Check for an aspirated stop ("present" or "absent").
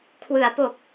present